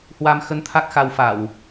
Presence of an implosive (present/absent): absent